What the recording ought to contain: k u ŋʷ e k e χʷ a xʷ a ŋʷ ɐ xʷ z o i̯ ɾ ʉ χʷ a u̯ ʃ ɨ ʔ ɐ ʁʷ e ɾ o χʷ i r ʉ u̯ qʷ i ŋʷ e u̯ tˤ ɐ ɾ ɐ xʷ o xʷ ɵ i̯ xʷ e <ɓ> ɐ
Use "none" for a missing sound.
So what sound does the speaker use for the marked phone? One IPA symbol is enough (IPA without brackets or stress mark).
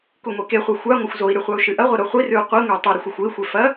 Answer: f